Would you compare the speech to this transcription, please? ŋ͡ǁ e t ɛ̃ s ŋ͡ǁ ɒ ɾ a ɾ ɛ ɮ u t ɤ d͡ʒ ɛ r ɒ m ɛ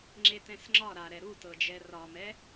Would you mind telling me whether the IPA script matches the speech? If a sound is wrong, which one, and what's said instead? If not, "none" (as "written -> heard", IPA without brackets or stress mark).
ɮ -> ɾ